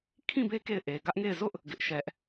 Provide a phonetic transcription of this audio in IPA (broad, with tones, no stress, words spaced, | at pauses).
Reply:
kʰĩ˦˨be˦ ke˦˨ɪ̯ ʔe˨ ɡä˦ʔŋe˦˨ɪ̯ zʊ˦ʔ | ɡɪ˦ʔʃɛ˦ʔ